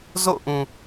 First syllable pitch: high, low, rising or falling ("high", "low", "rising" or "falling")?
falling